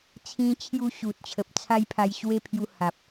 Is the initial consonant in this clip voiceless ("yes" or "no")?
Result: yes